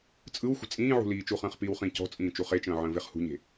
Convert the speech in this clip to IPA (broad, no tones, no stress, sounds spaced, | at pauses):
t͡sʼ ɯ w xʷ ə̤ t͡sʼ ĩː ʕ ṳ l iː t͡ʃ u χ ə̃ː χ p iː w χ ĩ c ɔ̤ t͡sʼ ĩː t͡ʃ u χ e t͡ʃ ə̃ː ʕ ə̃ː v e χ h ṳ ɲ e̤